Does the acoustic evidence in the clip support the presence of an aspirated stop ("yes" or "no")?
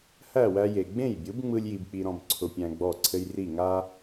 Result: yes